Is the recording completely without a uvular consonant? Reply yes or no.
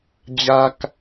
yes